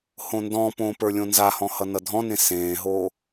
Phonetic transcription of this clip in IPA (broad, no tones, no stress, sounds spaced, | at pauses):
h õ n d ɔ̃ p õː p ə˞ lʲ õ n z a h ɔ̃ h ʌ n ʌ dʱ ɔ̃ n ẽ s ẽː ɦ o